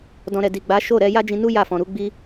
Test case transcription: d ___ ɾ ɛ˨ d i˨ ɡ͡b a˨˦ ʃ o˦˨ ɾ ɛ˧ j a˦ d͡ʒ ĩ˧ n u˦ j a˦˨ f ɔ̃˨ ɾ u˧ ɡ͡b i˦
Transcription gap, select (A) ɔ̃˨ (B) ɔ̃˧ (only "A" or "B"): A